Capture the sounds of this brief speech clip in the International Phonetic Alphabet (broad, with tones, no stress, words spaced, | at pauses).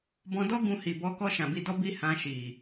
bɔ̃˧dɔ˦ ɡũ˧hi˨bɔ˧kɔ˧ ʃã˨ bi˧dɔ˦bi˦ hã˧ʃi˨